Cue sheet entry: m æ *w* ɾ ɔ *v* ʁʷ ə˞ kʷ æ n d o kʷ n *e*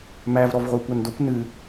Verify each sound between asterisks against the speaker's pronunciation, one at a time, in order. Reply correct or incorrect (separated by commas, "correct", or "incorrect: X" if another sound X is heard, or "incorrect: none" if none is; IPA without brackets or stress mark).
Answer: incorrect: v, correct, incorrect: ɨ